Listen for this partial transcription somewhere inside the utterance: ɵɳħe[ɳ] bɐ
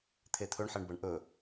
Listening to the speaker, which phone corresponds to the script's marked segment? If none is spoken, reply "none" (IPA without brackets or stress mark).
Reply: ɳ